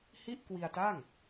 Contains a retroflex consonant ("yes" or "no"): no